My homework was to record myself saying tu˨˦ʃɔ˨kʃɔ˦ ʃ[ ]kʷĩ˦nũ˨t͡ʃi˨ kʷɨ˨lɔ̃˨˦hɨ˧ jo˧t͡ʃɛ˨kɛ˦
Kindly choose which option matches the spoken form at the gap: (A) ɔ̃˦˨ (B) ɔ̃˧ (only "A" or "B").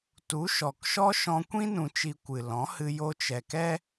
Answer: B